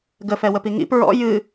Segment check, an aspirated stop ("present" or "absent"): absent